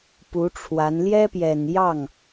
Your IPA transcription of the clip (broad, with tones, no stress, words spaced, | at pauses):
pu˧˥ʈ͡ʂʰwa˧˥n ljɛ˥pjɛ˨˩njɑ˥˩ŋ